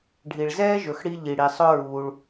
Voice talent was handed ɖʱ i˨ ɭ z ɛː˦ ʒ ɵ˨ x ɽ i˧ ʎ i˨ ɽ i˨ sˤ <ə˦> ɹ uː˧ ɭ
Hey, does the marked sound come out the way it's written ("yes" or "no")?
no